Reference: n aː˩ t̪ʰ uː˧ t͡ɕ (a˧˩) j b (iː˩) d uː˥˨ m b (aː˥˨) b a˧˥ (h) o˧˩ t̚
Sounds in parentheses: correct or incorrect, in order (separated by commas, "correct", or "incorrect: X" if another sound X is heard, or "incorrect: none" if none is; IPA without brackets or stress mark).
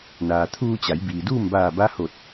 incorrect: a˩˧, correct, incorrect: aː˧˩, correct